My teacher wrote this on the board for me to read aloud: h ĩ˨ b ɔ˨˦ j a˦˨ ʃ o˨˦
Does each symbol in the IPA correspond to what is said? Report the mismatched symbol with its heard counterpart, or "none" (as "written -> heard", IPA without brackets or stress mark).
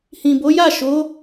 ɔ˨˦ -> o˨˦